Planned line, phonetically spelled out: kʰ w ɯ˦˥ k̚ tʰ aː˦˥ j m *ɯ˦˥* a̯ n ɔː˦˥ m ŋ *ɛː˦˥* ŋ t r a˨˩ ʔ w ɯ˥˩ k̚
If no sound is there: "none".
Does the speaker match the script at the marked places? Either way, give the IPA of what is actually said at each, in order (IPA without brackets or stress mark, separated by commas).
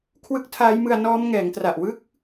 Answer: ɯ˧, ɛː˩˦